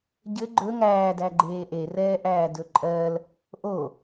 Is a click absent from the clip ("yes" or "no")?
no